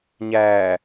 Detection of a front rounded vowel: absent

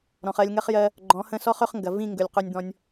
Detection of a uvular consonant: present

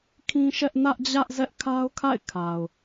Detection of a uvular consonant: absent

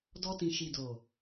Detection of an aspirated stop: absent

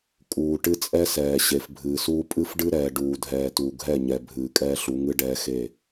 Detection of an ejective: present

